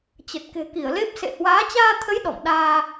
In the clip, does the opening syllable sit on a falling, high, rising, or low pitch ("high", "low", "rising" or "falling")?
low